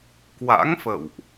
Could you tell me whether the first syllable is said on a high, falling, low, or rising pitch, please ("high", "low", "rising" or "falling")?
rising